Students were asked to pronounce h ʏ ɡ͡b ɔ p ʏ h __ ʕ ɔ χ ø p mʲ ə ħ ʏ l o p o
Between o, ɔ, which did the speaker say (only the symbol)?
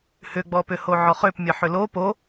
o